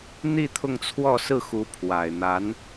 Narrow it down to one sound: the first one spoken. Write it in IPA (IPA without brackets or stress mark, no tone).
n̪